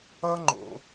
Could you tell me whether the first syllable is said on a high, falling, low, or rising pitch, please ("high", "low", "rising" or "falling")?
high